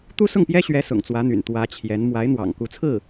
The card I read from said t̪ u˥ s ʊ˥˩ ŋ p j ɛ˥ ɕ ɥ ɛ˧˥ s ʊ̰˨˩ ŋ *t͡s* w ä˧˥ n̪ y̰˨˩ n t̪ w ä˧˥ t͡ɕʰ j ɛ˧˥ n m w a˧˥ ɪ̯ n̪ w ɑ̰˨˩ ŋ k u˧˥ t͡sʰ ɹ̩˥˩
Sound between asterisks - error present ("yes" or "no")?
no